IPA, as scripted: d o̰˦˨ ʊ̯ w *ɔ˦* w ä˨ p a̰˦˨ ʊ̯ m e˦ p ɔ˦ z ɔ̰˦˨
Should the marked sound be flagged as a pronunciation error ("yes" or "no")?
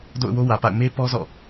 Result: yes